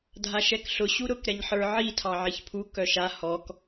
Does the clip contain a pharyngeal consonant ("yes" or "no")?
yes